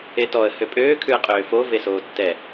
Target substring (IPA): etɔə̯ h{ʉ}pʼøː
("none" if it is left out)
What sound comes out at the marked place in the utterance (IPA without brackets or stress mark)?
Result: ø